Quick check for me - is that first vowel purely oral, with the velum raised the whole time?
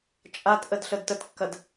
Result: yes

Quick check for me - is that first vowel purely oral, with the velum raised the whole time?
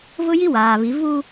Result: yes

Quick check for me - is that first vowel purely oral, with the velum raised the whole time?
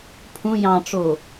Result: no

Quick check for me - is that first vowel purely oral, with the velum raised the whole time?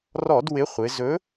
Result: yes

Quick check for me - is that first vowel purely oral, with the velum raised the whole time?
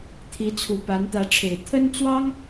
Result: yes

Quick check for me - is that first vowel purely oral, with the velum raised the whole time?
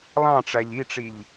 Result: no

